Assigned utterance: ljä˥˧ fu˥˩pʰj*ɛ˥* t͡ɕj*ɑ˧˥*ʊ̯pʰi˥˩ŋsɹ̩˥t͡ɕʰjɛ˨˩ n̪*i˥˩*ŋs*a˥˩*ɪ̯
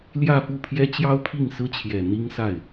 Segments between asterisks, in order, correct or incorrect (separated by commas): correct, incorrect, incorrect, correct